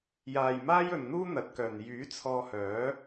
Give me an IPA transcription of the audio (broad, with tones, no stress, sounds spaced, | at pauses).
j aː˨ j m aː˥ j ɵ˨ n n̪ uː˥ n̪ ɐ˨˥ t̚ k œː˨ n j yː˨˥ t͡sʰ ɔː˧ h œː˨˥